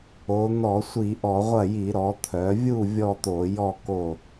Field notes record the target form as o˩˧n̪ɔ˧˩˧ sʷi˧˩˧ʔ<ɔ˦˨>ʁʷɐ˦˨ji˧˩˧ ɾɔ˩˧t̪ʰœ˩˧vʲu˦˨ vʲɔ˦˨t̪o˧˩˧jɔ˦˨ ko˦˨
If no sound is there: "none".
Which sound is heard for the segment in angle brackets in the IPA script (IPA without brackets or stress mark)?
ɔ˧˩˧